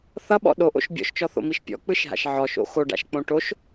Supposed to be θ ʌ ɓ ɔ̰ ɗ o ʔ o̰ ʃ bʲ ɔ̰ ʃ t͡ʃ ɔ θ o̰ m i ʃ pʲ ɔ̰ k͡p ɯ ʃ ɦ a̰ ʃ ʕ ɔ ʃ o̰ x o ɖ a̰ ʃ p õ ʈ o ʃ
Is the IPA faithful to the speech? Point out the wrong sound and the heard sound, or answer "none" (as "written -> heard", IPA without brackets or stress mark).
p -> k͡p